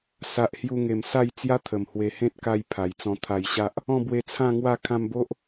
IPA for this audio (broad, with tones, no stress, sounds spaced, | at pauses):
s a˨ ʔ h j u˧ ŋ e˨˩ m s a˥˧ j t͡s j a˦ t̪ʰ ə˨˩ m h w e˨˩ h ẽ˦ t̚ k a˧ j pʰ a˨˩ j t͡s ɔ̃˧ t̪ʰ a˧ j ɕ a˦ ʔ | ɔ̃˥˧ b w e˧ t͡sʰ ã˥˧ ŋ w a˥˧ kʰ ã˧ m b o˦ ʔ